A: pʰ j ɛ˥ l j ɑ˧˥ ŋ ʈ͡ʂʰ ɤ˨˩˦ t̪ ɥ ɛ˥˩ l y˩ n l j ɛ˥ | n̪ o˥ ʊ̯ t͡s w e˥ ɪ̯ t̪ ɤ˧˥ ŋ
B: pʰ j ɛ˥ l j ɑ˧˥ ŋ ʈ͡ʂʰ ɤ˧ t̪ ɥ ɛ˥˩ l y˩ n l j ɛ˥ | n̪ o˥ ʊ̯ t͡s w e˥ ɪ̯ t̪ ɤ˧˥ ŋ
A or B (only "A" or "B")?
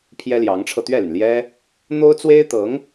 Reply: B